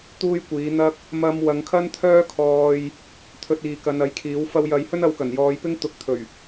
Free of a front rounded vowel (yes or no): no